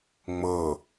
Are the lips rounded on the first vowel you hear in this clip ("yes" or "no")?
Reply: no